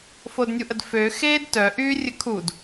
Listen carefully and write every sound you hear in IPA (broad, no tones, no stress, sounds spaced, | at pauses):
f o d nʲ u ʔ ə d f ø x eː d t œ ʔ yː rʲ ə kʰ u d